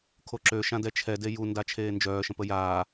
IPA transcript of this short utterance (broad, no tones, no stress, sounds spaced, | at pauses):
kʰ o ǁ ø ʃ ã d ɛ t͡ʃʰ ɛ d e j u n d a t͡ʃʰ eː n d͡ʒ œː ʃ ə̃ p ə j aː